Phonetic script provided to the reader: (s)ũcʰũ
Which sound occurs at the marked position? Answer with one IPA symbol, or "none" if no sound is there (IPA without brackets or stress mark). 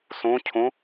s